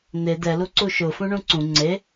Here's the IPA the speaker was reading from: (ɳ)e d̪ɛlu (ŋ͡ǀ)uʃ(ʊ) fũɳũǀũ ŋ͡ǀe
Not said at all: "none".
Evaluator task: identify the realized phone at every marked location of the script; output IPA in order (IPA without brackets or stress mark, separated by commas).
n̪, ǀ, ʊ